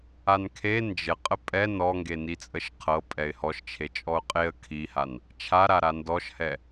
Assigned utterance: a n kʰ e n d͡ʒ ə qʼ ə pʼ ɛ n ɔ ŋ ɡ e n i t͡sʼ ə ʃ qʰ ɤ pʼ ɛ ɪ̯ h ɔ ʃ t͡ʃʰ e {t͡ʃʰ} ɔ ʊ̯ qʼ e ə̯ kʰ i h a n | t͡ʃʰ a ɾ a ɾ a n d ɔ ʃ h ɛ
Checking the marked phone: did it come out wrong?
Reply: yes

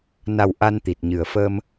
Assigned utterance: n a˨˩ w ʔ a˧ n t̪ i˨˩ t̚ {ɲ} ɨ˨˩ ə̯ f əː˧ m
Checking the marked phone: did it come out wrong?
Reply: no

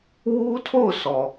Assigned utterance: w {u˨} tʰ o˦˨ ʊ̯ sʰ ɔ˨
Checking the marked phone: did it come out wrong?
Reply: yes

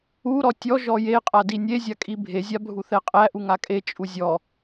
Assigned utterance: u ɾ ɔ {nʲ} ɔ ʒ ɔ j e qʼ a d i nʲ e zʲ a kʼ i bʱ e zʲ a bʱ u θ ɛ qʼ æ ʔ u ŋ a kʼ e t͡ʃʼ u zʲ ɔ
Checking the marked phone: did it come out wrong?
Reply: yes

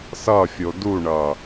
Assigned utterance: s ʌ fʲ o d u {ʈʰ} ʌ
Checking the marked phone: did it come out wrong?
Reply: yes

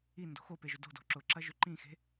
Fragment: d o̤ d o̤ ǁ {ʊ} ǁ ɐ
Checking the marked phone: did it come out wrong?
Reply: no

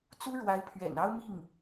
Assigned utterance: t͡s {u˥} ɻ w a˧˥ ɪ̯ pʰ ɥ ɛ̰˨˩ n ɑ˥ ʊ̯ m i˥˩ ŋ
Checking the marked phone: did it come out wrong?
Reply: no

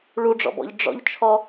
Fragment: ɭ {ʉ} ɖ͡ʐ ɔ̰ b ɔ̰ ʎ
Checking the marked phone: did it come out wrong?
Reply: yes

